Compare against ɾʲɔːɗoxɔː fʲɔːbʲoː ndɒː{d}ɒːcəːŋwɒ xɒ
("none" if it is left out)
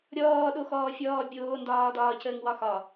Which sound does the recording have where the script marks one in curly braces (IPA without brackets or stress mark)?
d